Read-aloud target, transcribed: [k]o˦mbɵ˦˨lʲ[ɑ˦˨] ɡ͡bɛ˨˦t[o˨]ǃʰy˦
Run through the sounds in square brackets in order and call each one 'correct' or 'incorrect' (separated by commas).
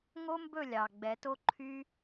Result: incorrect, incorrect, incorrect